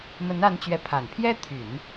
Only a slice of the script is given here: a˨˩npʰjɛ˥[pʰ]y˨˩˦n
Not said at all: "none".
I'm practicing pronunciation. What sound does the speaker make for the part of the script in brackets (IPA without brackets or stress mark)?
t̪ʰ